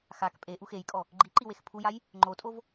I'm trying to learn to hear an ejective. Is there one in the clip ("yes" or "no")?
yes